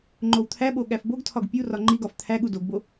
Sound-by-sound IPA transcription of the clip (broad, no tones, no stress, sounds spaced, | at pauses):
ŋ͡ǃ o w t̪ʰ æ ɓ o ɠ æ f b o ɡ tʰ ɒ ɡ pʲ u r ɒ ŋ͡ǃ i ɡ ɒ f t̪ʰ æ ɠ u d o ɡ b o